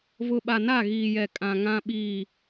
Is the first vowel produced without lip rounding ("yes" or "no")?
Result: no